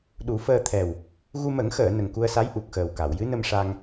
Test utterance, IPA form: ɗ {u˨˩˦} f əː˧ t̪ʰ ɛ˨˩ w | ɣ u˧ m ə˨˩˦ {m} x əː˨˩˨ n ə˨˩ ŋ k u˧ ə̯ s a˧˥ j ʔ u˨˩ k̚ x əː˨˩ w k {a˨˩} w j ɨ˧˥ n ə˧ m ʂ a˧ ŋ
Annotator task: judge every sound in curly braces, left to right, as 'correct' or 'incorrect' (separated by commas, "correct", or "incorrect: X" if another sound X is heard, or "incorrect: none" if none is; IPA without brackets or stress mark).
correct, incorrect: ŋ, incorrect: a˨˩˨